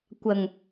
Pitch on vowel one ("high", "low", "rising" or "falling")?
low